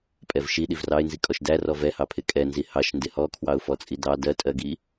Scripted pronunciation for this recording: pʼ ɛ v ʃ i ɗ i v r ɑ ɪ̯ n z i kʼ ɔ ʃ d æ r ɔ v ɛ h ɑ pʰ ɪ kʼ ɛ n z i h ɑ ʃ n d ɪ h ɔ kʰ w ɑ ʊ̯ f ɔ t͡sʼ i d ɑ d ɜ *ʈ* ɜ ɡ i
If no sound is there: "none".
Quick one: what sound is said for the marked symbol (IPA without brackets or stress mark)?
tʼ